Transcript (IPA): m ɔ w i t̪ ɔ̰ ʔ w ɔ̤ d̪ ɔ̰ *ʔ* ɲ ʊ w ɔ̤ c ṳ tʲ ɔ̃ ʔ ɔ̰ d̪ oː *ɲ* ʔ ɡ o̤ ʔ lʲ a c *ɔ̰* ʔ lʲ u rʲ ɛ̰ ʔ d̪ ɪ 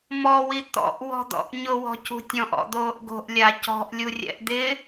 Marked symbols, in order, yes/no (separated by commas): yes, no, no